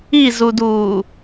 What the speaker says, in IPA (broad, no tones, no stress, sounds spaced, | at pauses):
i z u d uː